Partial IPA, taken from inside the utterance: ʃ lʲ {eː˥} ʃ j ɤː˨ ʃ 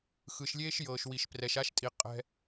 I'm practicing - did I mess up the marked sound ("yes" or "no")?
no